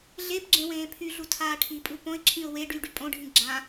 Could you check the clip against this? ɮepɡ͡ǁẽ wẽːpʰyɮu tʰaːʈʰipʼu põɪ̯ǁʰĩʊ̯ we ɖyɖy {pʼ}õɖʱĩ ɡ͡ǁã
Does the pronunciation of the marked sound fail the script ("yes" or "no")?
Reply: no